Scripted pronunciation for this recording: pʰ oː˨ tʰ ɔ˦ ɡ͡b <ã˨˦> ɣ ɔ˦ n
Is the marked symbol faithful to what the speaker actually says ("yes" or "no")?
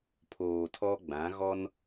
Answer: yes